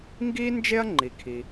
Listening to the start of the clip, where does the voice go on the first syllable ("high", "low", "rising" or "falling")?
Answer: high